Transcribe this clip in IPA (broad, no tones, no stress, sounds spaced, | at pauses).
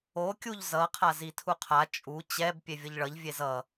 o kʲ u ʎ z ʌ qʰ a z i tʰ u qʰ a t͡ʃʼ u t͡ɕ ɛ b pʲ e vʲ ʌ ʎ ɭ ʌ ʎ vʲ e z ʌ